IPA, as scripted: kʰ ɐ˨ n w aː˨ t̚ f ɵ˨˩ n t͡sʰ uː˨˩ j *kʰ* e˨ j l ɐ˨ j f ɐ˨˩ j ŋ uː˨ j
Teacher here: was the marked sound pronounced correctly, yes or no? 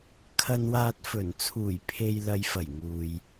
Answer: no